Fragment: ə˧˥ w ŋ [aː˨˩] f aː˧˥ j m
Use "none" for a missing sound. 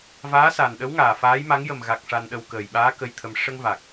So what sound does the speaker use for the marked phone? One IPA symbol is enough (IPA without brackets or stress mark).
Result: aː˨˩